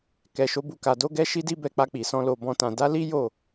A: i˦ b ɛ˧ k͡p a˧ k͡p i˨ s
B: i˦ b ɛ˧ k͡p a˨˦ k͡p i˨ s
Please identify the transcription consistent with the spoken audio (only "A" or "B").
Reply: A